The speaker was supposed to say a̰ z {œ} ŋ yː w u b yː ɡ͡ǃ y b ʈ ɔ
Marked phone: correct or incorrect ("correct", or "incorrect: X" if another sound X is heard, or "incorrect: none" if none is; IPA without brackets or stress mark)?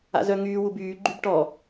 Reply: correct